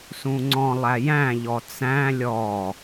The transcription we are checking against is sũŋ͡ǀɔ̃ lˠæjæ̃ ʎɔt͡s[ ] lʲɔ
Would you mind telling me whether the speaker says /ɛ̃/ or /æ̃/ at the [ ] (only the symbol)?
æ̃